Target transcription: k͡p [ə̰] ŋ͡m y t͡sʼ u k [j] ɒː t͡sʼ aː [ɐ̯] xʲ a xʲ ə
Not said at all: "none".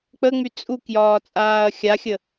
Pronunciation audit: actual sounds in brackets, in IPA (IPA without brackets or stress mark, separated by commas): ə, j, ɐ̯